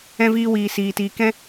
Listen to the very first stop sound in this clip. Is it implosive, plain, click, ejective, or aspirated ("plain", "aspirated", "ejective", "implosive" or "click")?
plain